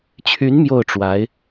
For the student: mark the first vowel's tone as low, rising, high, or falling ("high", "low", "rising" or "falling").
rising